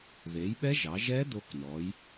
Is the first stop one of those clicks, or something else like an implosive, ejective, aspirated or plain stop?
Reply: implosive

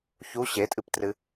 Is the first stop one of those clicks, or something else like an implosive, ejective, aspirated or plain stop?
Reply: ejective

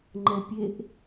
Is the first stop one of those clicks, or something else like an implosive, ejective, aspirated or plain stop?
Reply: click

